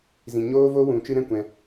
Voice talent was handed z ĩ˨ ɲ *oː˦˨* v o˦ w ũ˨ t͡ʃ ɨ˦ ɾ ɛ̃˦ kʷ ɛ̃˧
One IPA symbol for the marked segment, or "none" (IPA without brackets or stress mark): oː˦